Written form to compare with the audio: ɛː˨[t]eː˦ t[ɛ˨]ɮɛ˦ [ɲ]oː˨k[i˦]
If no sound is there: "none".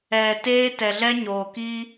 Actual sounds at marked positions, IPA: t, ɛ˨, ɲ, i˦

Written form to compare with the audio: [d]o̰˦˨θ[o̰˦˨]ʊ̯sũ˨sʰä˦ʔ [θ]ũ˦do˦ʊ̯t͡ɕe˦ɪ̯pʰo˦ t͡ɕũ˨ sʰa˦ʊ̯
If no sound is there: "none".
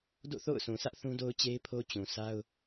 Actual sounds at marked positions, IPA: d, o̰˦˨, θ

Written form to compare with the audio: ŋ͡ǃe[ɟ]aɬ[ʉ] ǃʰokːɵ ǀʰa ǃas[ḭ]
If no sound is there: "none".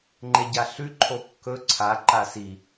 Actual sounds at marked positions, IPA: ɟ, ʉ, i

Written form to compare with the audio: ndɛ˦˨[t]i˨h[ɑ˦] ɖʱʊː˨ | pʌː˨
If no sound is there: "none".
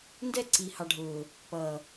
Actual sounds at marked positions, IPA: ǀ, ɑ˨

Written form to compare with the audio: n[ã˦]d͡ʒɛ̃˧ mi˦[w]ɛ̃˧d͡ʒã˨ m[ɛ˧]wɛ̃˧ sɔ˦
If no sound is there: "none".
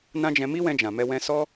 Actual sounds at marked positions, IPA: ã˦, w, ɛ˧

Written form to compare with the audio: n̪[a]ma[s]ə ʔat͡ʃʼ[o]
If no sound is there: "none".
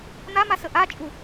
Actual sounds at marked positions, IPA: a, s, u

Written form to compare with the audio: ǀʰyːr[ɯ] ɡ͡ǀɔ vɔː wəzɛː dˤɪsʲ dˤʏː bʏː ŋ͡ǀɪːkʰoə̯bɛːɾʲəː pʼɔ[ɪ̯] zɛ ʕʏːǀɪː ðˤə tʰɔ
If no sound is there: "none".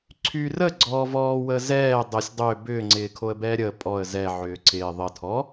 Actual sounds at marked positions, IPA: ə, ə̯

